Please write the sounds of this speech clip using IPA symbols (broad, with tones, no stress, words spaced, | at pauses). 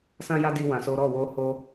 sã˦ja˦ di˦ wã˧so˦ ɾɔ˦˨wo˧ ho˧